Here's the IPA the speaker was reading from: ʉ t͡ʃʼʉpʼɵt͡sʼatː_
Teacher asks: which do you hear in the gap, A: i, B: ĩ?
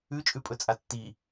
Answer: A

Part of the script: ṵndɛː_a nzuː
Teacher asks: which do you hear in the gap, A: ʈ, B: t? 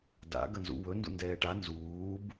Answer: A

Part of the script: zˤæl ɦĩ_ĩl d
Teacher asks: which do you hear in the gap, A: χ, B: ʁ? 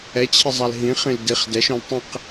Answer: A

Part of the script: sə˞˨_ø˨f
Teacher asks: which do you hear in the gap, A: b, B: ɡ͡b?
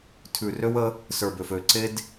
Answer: A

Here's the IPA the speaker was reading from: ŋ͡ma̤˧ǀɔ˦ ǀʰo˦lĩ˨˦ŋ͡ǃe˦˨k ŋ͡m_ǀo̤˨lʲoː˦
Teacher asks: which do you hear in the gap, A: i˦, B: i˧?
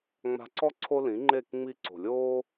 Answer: B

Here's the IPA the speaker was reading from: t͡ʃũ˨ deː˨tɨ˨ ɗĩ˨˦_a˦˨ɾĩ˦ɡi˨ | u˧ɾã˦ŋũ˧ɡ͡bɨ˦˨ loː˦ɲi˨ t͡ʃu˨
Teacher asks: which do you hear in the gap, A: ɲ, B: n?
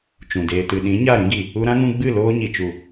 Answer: A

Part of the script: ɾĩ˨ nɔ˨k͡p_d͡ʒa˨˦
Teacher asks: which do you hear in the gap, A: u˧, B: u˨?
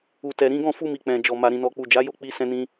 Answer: B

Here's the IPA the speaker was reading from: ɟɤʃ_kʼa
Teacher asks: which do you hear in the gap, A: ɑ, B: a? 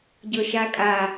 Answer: B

